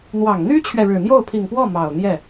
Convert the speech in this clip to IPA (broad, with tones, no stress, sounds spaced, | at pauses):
n̪ w ɑ˨˩ ŋ n̪ y˥ t͡ɕʰ ɥ ɛ˨ ɻ ɻ̩˨˩ n̪ j o˥˩ ʊ̯ pʰ i˨˩ ŋ p w ɔ˥˩ m ɑ˨˩ ʊ̯ n̪ j ɛ˥˩